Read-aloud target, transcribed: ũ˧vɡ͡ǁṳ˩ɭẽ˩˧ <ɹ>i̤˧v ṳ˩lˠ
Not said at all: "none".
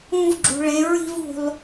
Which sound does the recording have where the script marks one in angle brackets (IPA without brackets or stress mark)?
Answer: ɹ